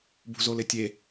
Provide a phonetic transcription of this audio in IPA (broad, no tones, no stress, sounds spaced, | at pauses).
b ṳ z o l ɪ tʲ e